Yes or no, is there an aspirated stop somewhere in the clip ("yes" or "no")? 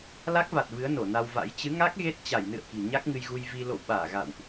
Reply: no